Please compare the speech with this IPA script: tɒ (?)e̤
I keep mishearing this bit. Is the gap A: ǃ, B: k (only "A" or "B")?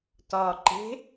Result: A